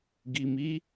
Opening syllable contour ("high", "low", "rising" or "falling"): low